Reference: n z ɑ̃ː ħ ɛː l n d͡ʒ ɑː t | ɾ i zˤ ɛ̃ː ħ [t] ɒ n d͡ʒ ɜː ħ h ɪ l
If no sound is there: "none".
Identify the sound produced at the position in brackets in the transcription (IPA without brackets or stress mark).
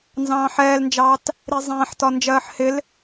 t